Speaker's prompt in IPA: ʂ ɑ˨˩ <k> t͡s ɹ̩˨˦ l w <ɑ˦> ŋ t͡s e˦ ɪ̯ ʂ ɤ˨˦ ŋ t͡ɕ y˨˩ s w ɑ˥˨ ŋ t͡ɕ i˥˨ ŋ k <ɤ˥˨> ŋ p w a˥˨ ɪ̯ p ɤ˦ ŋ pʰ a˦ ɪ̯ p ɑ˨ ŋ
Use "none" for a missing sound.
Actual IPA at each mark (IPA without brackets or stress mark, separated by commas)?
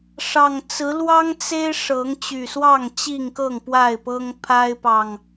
ŋ, ɑ˦, ɤ˥˨